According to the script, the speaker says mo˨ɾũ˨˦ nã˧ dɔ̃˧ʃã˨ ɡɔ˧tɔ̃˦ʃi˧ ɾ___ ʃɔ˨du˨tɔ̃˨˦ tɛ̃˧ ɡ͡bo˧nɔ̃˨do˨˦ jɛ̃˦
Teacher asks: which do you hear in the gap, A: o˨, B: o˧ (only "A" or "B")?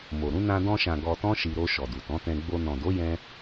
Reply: B